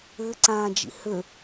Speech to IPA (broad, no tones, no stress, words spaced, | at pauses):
ɘ ǀãːd͡ʒḭhø